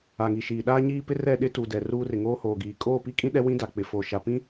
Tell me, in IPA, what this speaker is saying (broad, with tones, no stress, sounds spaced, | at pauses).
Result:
a˨ ŋ i˨ ʃ iː˨ ɗ aː˦ ɲ iː˦ p ɪ˦ r ɛ˦˨ ɗ ɪ˦ t u˨ d ɛ˨ r uː˦ r ɪ˨ ŋ oː˦ h oː˨ ɡ iː˨ kʼ oː˦˨ p i˦ kʼ ĩ˦ ɗ ɛ˦ w ĩ˦ d a˨ k͡p ɪ˨ f oː˨ ʃ a˨ p ĩ˦